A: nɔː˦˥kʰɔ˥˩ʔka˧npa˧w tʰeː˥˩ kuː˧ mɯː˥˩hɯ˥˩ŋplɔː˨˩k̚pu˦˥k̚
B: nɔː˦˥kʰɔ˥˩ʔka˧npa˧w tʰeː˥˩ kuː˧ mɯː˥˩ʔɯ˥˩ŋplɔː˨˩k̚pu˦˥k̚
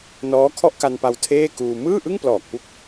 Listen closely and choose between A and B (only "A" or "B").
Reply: B